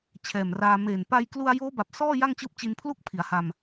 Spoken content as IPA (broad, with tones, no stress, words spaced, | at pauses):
t͡ɕʰɛː˨˩mraː˧ meː˨˩n pa˧jklu˧a̯ joː˦˥ba˨˩p̚ sɔː˥˩ ja˥˩ŋt͡ɕɯː˦˥p̚t͡ɕi˧npʰlu˥˩k̚ pʰi˩˦a̯ha˧m